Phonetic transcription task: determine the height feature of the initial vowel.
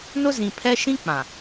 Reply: high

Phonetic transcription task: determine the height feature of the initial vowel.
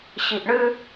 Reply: high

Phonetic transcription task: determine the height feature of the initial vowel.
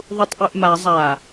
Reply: high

